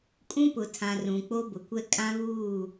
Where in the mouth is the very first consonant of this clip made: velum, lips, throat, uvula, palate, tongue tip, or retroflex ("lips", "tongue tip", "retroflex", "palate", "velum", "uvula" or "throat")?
velum